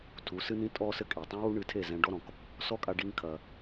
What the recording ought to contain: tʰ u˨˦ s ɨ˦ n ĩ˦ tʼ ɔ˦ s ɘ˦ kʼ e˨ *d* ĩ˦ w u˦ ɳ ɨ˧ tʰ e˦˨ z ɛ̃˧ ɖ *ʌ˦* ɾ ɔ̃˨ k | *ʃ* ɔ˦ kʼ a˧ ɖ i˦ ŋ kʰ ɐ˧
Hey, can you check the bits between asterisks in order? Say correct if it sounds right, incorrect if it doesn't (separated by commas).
incorrect, incorrect, incorrect